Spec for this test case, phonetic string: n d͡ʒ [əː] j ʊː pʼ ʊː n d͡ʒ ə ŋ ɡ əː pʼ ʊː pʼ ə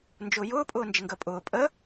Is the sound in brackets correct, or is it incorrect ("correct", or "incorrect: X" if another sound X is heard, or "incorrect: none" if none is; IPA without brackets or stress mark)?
incorrect: ʊː